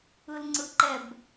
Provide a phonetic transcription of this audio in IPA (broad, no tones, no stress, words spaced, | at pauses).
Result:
ɯlŋ͡ǀɯǃɛb